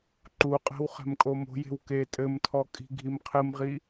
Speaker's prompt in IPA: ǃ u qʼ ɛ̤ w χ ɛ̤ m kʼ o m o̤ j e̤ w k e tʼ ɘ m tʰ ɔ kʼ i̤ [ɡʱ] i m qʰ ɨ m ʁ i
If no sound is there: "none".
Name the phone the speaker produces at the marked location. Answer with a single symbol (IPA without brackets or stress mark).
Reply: ɡʱ